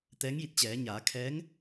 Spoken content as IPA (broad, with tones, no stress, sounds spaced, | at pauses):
t̪ ɛː˧˥ ŋ j i˧ t̚ t͡ɕ ɛː˩˧ ɲ aː˩˧ kʰ ɛː˧˥ ŋ